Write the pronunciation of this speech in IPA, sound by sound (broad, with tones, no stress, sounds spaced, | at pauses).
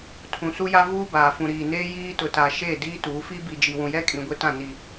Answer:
tʰ ũ˨ s u˦ j a˦ v uː˦ b aː˨ f ũ˨ ɾ iː˨ n eː˦ j iː˦ t ʊ˨ t a˨ ʃ e˦˨ d iː˦ t uː˨˦ f iː˦ b i˨ d͡ʒ i˨ w ũ˨ j ɛ˦ kʼ ĩ˨ ɡʷ e˦ t ã˦˨ n i˨